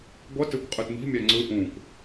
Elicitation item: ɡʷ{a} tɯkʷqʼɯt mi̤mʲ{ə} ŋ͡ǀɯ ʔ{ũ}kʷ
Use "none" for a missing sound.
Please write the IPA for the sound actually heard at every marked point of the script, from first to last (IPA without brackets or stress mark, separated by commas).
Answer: ʌ, a, ũ